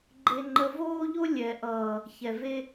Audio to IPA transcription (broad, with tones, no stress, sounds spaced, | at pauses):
ɡ͡ǃ e˦ ŋ͡ǃ ə˦ v oː˦ ʎ o˦ lʲ ɛ˨ ʔ ʌː˨ | ç ɛ˨ v e˦